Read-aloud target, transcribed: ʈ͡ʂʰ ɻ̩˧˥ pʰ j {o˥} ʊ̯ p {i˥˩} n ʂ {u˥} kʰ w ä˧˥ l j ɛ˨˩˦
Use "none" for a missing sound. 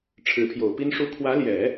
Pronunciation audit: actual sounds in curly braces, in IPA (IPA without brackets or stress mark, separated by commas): o˨˩, i˥, u˥